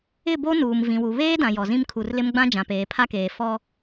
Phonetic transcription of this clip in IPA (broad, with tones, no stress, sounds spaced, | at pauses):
ɪ˦˨ b o˦ n uː˨ m v ĩ˨ w u˨ β eː˦ d ã˨ j ɔ˨ z ĩ˦ m kʰ u˨ r l ɪ˦ m ɡ͡b ã˦ d͡ʒ ã˨ p eː˨ pʰ a˦ k eː˨ f ɔ˦